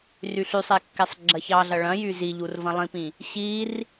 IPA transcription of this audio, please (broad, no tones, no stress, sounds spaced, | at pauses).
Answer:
r y ɬ y sˤ e kː e sˤ ɡ͡ǁ ɐ ç ɑ ɮ ɐ ɭ ɐ̃ j y z i ʎ u r v ɐ̃ lˠ ĩ p ĩ | ɕ i r